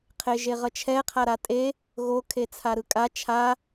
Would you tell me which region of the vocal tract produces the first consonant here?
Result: uvula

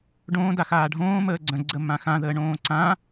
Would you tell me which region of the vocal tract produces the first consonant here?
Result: retroflex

